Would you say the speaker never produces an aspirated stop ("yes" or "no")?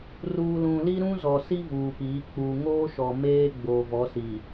yes